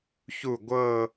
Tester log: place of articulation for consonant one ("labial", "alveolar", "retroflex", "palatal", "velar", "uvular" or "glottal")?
palatal